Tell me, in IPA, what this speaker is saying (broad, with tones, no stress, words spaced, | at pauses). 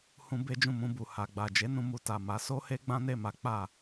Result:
hũ˧ be˦d͡ʒũ˦˨ mũ˧bu˨ha˨ɡ͡ba˨ d͡ʒe˨˦nũ˧ mu˧ta˨ma˨˦ so˦he˦ ɡ͡bã˦ne˦˨ma˨˦ k͡pa˦˨